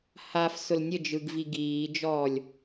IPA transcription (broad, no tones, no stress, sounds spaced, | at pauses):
h a f s ʊ l nʲ ə d͡ʒ ɯ ɡ v i ɡ iː d͡ʒ ɔː lʲ